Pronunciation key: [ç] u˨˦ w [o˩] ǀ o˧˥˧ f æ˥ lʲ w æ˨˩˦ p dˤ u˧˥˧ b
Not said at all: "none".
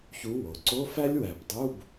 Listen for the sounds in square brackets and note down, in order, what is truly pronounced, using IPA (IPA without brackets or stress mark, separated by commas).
ç, o˩